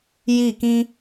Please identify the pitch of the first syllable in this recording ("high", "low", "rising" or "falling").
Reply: falling